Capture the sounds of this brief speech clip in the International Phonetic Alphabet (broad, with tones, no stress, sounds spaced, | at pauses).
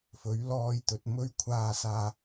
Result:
f ɵ˨˥ ɥ l ɔː˧ j t̪ ɵ˨ t̚ m ɵ˥ ɥ kʷʰ aː˧ s aː˨